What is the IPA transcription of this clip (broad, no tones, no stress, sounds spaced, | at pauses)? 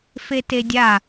f e t e dʲ a